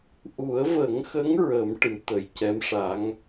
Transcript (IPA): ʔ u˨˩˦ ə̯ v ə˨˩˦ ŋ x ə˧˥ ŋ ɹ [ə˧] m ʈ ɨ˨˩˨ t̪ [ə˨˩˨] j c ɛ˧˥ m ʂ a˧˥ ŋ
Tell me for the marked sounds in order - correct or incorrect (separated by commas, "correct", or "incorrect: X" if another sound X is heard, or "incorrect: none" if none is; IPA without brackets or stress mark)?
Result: incorrect: ə˨˩˦, incorrect: ə˨˩